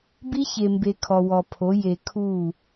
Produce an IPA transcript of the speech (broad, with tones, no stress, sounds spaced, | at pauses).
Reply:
b i˦ ç e˨ m b e˨ kʰ ɔ˨ w ɔ˨ pʰ o˨˦ j e˨ kʰ u˦˨